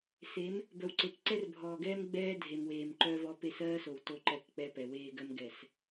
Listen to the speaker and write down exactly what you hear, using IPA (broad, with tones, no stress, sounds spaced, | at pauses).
s e˨˦ m | b œ˨ w ǀ e˨ k ǀ ɛ˦ r bʱ ɔː˨ ɡ ɛː˦ m ɡ͡b ɛː˦ dʱ e˨ m w eː˨ m ǃ œ˦ v ɔ˦ p e˦˨ s ɜː˦ s o˨ w t o˦ ǃ ɛ˨ k k͡p ɛ˨ p ɛ˨ w eː˦ ɡ ɜ˦ m ɡ ɛ˨ s